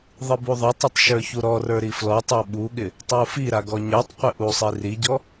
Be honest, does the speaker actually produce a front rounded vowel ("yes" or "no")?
no